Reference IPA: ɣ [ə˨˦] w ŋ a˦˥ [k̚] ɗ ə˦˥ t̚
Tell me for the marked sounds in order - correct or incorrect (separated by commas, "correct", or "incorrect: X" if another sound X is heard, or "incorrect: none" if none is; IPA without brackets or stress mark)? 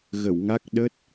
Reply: incorrect: ə˧˩, correct